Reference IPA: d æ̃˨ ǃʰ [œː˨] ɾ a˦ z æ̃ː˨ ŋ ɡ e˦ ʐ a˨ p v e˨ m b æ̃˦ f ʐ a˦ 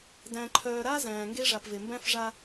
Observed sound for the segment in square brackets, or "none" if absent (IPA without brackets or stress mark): œː˨